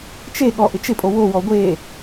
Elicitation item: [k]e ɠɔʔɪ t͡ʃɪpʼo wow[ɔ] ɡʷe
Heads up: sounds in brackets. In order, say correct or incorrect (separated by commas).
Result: incorrect, correct